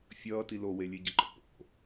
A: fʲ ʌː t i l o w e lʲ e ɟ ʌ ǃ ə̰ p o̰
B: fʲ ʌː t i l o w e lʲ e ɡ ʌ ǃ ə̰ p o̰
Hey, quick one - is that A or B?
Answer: A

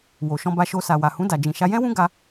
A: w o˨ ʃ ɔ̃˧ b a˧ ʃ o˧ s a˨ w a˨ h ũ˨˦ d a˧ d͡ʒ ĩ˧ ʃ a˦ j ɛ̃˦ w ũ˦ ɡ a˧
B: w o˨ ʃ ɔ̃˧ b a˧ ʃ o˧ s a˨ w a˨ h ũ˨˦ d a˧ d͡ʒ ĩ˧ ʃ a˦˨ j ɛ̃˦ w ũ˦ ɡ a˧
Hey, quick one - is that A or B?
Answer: A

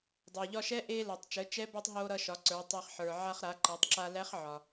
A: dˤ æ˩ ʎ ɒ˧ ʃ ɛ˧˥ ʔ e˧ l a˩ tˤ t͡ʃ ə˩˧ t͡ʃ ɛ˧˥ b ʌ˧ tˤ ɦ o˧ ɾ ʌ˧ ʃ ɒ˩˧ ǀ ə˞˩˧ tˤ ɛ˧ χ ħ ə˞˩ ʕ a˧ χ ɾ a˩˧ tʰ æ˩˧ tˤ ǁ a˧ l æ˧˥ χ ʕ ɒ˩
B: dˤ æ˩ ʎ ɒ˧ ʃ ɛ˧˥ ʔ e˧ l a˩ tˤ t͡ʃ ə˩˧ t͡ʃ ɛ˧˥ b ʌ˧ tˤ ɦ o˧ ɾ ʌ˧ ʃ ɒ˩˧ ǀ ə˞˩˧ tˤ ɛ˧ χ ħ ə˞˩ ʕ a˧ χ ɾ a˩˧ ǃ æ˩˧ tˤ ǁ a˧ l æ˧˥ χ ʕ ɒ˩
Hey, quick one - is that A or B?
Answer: B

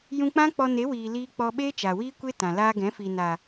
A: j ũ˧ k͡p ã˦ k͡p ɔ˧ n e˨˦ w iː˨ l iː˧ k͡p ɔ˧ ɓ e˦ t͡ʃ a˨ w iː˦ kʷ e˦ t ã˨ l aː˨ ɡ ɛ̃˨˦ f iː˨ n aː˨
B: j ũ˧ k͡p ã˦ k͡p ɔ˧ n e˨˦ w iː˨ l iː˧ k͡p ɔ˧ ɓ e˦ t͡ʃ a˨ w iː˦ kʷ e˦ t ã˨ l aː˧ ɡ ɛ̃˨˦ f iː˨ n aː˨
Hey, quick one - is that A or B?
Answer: B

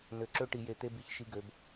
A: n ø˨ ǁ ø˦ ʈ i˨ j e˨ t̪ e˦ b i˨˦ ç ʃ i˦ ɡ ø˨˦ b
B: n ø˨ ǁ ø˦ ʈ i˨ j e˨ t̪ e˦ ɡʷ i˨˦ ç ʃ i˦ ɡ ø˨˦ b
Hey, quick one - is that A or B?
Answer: A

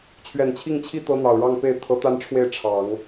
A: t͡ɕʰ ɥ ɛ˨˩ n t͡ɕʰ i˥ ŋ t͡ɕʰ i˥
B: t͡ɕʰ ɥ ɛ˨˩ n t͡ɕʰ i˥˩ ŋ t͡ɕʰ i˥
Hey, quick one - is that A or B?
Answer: B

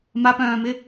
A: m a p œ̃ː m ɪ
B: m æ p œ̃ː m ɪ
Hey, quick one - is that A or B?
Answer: A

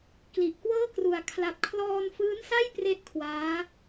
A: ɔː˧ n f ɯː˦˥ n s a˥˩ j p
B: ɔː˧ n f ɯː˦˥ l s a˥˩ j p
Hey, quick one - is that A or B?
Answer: A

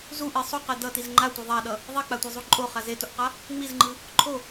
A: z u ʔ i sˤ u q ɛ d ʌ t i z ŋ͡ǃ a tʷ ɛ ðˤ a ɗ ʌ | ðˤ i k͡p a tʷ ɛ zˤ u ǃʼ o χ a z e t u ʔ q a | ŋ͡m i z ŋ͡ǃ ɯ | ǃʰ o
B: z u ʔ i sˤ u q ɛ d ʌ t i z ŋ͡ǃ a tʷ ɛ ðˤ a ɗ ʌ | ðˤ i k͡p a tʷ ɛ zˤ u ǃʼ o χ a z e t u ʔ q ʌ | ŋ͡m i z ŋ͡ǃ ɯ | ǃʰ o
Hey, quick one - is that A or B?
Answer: A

